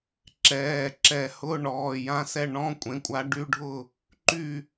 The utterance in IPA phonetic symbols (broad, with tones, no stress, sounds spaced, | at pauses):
ǁ ɛː˩˧˩ ǁ ɛ˧˩˧ h ʊ˧˥˧ ɳ ɔː˩˧˩ j ã˧˥˧ s ɛ˥˩ ɳ ɔ̃˧˥˧ kʷʼ ẽ˩˧˩ kʷʼ a˨˥ ɖ y˧˥˧ ɖʱ ʊ˥˩ | ǃ y˥˩